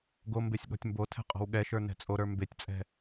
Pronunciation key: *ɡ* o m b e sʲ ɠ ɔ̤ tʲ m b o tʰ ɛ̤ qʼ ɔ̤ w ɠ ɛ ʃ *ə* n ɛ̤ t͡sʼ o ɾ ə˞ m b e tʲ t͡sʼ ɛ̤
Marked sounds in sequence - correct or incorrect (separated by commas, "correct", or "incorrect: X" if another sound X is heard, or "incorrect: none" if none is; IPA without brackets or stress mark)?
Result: correct, incorrect: ə˞